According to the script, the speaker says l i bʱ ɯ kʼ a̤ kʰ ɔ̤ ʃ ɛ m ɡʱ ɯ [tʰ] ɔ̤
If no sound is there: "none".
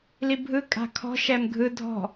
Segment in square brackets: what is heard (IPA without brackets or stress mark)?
dʱ